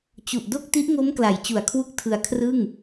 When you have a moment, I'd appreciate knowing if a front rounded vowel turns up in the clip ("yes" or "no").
no